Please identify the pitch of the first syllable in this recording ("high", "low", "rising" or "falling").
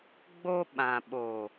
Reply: high